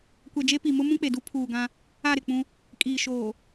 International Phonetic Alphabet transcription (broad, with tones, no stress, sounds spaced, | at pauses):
kʷ ɛ˨ d͡ʒ e˦ p i˨ m ʊ˦ m ũ˦ k͡p e˨ d u˦ pʰ uː˨ ɡ ã˦ | a˦˨ ɾ ɪ˨ k͡p ũ˦ | kʼ iː˨ ʃ oː˨